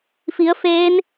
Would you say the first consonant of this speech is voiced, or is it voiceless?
voiceless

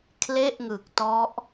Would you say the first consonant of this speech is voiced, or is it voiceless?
voiceless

